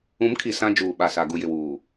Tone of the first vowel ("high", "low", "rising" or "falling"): rising